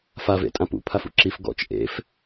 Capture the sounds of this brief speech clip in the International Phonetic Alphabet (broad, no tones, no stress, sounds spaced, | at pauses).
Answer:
f a v ḛ tʼ ã p ṵ pʰ a f ṵ ǁ i f ɡ ɔ̰ t͡ʃ ʔ ḛ f